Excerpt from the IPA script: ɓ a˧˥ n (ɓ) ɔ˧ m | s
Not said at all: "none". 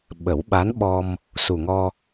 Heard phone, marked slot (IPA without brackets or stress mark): ɓ